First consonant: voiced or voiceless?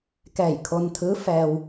voiceless